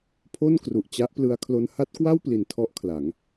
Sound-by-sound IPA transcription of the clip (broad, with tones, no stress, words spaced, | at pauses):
pʰo˥˩nkru˨˩ʔt͡ɕa˦˥ʔplɯ˧a̯ kʰlo˧nha˦˥t̚kwa˥˩wpli˨˩n tʰɔ˦˥ʔkʰla˩˦ŋ